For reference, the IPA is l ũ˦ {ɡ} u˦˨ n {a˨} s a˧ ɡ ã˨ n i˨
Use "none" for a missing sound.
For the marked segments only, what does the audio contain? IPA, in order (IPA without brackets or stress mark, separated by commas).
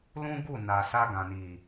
ɡ, a˨